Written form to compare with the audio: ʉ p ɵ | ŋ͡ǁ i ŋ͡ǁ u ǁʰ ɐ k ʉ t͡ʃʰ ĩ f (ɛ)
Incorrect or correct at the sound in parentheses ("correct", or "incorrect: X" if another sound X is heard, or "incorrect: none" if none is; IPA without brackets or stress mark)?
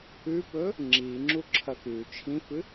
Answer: incorrect: ɨ